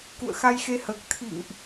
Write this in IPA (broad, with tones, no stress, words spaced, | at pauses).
kṵ˧˨ə̯ xa˧jxe˧həː˨˩k̚ t̪ʰḭ˧˨ŋʔ